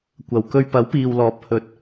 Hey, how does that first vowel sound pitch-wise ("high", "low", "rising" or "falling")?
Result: low